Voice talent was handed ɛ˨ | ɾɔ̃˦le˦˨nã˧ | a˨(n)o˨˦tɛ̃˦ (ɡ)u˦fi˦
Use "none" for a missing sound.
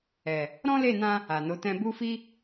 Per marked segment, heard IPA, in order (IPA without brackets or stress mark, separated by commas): n, b